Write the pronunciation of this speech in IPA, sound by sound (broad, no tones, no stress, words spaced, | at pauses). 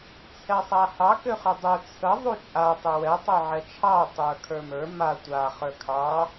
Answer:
t͡sʰɛsˤahɑ køχʏdˤø t͡sʰə ðˤut͡ʃʼa tˤʏwɛ tˤøʕɛt͡ʃʰɑ tˤə˞kʰə˞mə˞ ma tʷa χə˞kʰɑ